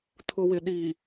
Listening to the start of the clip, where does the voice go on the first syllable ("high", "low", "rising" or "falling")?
low